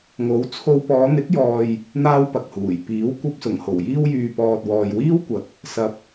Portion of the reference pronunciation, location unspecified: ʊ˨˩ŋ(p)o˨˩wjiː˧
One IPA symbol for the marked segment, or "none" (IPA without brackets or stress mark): h